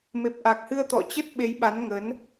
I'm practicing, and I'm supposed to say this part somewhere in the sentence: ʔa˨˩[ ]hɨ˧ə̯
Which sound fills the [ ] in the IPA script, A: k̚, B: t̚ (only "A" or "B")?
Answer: A